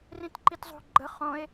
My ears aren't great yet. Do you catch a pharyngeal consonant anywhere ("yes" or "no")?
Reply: no